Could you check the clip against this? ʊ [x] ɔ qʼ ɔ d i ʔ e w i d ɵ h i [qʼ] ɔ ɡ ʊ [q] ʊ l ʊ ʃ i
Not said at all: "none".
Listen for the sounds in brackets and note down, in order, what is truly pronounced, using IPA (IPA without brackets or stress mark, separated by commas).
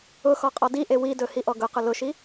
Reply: x, ʔ, q